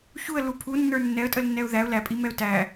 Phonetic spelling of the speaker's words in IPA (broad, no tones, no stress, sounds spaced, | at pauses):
ç u ə̯ l u pʰ u nː ə˞ nː ɛ ə̯ tʼ ə l nː ɛ ʊ̯ ð æ ʊ̯ l æ pʼ i m ɛ ʊ̯ t æ